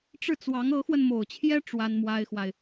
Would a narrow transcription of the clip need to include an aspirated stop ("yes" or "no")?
yes